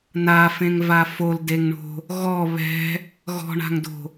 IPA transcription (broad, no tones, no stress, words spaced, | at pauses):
nafẽŋva foldeŋɳo̤ | ɣɔ βɛ̤ | ɣɔ̤ɳa̤ŋdo̤